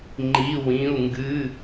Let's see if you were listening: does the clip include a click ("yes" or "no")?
yes